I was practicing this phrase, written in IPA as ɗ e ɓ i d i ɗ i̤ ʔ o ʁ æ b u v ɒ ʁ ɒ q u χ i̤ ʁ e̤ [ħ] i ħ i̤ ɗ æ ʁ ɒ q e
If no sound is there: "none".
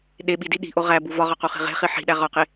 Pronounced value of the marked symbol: χ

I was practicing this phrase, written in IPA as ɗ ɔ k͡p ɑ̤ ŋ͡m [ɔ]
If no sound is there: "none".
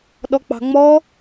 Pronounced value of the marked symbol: ɔ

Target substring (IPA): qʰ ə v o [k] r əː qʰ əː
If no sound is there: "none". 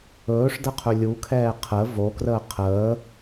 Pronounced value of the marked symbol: k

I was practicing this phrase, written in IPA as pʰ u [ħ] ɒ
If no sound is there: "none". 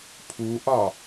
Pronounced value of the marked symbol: ʔ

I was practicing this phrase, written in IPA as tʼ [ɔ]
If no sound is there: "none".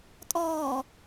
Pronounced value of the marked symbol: ɔː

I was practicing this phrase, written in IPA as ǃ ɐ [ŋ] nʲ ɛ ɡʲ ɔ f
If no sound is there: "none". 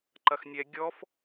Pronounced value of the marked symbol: x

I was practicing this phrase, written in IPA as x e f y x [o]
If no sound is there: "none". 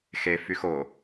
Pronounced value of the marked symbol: o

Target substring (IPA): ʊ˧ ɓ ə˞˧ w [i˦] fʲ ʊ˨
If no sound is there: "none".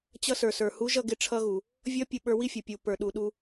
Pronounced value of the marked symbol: i˦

